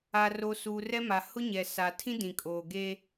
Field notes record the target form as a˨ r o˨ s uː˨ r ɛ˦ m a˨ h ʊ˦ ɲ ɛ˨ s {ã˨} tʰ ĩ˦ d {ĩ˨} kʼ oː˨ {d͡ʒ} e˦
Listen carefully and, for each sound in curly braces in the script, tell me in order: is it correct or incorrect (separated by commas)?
incorrect, correct, incorrect